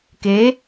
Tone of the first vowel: rising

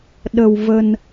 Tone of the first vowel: low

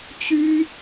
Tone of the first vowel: high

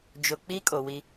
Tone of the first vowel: low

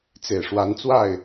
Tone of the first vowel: low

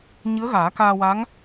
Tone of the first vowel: rising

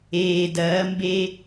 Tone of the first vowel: low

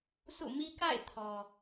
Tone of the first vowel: falling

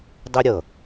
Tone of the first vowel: high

